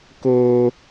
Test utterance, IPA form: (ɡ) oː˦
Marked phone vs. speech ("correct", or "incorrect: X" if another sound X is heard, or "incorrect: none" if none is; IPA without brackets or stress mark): incorrect: k